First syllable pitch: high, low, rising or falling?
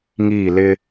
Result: falling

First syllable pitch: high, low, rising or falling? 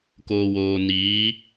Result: low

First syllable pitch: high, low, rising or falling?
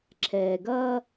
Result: low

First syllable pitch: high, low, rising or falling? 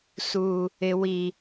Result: high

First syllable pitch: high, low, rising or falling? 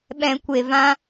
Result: low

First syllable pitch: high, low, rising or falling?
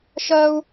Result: high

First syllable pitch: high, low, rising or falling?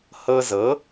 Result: high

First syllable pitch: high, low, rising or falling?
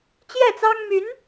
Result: falling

